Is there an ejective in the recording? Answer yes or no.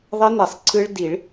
no